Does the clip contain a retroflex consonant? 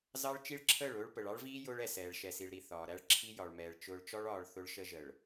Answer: yes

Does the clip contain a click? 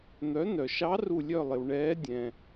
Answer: no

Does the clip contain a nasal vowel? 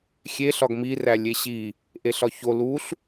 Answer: no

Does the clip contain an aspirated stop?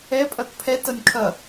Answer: yes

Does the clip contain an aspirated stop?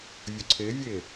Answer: yes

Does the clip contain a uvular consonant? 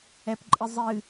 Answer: no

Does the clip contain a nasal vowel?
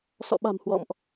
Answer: no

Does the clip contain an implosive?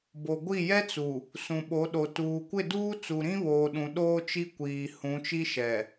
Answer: yes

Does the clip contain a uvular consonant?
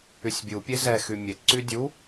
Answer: no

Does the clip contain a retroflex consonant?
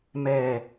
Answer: no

